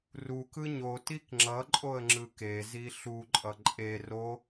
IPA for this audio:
r u k ɯ ɲ o t i k ŋ͡ǁ ʌ ǃʼ o ə̯ ŋ͡ǁ ɯ k e z i ɬ u ǃʼ ʌ ǃʼ e r o

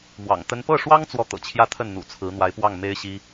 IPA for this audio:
m w ɑ̰˨˩ ŋ t̪ ə˥ n p ɤ˥˩ ʂ w ɑ˥ ŋ t͡s w ɔ˥˩ t̪ ɤ̰˨˩ t͡ɕʰ j ä˥ t̪ʰ ə˥˩ n n̪ ṵ˨˩ t͡sʰ ɹ̩˧˥ n̪ w a˧˥ ɪ̯ p w ɑ˥˩ ŋ m e˥ ɪ̯ ɕ i˥

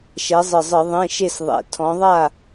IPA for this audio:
ʃ ɛ˨˦ zˤ ɨ˨˩ zˤ ɨ˧˩˧ ðˤ ẽ˧˥˧ ʃ e˥˨ s ðˤ ɛ̰˨˩ tʰ ɔ̃˨˦ ðˤ a˥˨

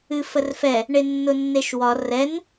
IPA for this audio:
ɨ f ə r f ɛ | ɳ e nː ʊ nː e ʃ w ɒ r ɛ n

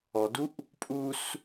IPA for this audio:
ɔ d u ʔ | pʼ u s

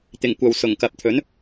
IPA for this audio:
t̪ ɪ˨˩ ŋ kʷ ɐ˨ w s ʊ˨˩ ŋ k ɐ˨ p̚ t̪ʰ ɵ˨˥ n

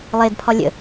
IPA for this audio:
lˠ e d pʰ ɒ lʲ ə̰

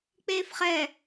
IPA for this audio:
k͡p eː f χ ɛ

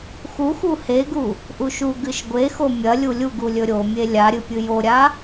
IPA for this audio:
x u x u h e ɡ u | ʔ u ʃ u ɡ ɨ ʃ ɡʷ e x o mʲ ɐ lʲ u lʲ u ɡ u lʲ ɵ ɾʲ o mʲ e lʲ a ɾʲ ɨ pʲ ɨ j o ɾʲ a

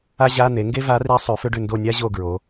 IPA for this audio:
a˥ ʑ a˧˥˧ n̪ e˩˥ ŋ ɡ e˥ v a˧˥ r i˧˥ sˤ ʉ˩˥ f ʏ˥ ɖ ʏ˦˨ n d o˦˨ nʲ a˥ ʑ o˦˨ ɡ ɹ o˩˧

